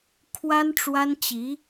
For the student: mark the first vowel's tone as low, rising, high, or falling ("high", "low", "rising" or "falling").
high